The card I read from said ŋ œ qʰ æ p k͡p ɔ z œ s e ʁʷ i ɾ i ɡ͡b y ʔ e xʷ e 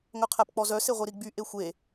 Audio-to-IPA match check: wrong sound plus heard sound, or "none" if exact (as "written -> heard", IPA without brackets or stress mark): none